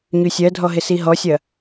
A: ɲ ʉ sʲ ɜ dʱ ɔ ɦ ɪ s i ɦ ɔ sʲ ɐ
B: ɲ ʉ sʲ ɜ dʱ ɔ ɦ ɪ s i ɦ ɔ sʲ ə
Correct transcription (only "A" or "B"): A